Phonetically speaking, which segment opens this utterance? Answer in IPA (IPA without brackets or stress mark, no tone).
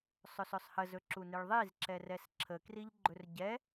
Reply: sˤ